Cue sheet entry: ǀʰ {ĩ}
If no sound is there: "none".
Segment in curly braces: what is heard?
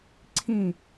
ĩ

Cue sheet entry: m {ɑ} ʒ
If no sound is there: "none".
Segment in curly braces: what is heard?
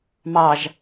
ɑ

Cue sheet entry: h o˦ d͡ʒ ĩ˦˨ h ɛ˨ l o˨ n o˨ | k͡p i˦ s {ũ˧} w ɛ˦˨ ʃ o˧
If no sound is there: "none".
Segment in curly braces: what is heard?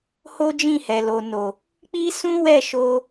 ũ˦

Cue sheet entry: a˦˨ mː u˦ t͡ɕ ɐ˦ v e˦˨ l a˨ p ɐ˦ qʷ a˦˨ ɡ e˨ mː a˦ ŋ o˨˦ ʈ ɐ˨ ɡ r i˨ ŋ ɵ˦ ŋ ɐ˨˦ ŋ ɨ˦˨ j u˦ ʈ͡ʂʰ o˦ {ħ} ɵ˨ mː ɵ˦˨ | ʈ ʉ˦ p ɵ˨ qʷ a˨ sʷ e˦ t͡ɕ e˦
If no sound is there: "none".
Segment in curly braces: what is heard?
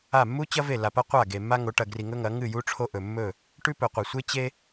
ʔ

